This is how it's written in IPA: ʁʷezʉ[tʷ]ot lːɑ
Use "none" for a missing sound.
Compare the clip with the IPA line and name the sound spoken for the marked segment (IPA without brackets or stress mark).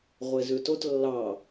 t